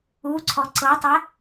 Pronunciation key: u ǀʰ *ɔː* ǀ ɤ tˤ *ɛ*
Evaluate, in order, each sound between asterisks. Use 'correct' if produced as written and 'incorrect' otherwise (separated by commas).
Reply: incorrect, correct